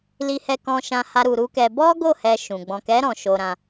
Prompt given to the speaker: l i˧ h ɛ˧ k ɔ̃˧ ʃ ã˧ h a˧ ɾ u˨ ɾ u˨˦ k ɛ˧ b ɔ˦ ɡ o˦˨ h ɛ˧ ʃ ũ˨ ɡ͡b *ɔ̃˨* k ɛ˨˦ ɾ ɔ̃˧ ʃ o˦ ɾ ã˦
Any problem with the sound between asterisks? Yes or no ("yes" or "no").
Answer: no